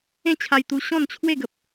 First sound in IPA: ẽ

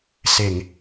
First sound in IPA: s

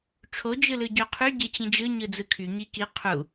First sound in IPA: ʈ͡ʂʰ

